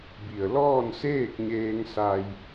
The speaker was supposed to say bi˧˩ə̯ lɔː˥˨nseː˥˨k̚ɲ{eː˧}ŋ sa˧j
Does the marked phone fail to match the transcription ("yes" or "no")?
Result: no